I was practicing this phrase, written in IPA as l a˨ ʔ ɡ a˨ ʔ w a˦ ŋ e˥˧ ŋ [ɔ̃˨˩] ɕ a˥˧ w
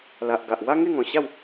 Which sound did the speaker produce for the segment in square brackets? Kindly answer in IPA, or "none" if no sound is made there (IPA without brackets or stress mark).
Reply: ɔ̃˨˩